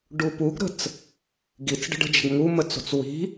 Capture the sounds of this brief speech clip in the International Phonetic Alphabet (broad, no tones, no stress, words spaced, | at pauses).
ɖupuɡɾə̤t͡s | ɡit͡sɖə̤ɖə̤d͡ʒə̤ɡ ŋumə t͡so̤t͡swi̤